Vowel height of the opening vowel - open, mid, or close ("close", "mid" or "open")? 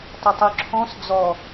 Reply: close